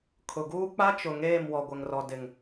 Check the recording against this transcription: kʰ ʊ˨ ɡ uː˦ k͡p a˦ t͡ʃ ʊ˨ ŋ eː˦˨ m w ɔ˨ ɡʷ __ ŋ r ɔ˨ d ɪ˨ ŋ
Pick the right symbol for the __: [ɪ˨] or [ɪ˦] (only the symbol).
ɪ˨